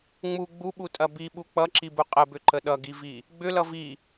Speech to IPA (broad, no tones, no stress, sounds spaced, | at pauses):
ŋ͡m u ɡ͡b u ɓ u tʼ ɐ b i ɓ u k͡p ʌ ǁ i b u qʼ ə b ʏ ǃ ə ɗ ʌ ɡ i v i | ɡ͡b ʏ l ʌ v i